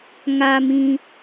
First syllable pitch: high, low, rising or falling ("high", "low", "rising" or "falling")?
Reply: low